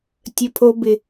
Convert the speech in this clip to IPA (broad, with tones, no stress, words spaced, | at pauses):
tʲə˨pʰo˨bɪ˨